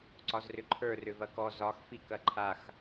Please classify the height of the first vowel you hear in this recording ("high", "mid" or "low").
low